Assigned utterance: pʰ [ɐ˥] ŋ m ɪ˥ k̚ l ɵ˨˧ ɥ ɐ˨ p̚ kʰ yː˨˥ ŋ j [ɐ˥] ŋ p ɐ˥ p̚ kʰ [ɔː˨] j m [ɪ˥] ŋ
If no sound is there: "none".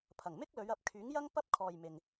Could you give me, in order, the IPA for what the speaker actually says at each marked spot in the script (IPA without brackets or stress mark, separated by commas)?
ɐ˨˩, ɐ˥, ɔː˨, ɪ˨